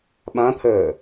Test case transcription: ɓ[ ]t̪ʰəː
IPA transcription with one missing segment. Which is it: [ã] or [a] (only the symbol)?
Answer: ã